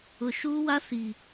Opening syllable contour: low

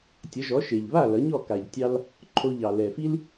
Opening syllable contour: rising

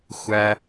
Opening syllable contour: high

